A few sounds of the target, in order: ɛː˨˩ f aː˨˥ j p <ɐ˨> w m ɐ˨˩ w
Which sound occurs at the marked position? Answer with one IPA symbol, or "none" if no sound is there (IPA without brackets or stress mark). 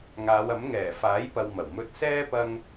ɐ˨